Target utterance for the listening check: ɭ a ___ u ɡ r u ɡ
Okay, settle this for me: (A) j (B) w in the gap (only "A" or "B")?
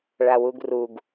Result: B